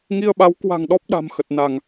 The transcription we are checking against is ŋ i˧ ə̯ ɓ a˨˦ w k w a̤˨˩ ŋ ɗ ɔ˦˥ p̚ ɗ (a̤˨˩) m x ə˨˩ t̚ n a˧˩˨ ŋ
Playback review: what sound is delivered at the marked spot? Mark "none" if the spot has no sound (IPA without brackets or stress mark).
a̤˨˩